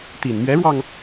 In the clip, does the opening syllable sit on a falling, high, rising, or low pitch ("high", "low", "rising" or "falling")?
low